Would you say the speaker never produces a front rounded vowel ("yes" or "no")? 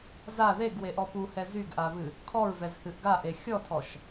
no